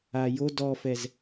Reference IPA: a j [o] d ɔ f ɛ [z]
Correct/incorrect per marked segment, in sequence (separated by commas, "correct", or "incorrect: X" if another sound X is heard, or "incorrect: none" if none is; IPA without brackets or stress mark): correct, correct